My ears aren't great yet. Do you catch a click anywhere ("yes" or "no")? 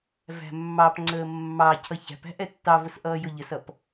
yes